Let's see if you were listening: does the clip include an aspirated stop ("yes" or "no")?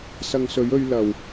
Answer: no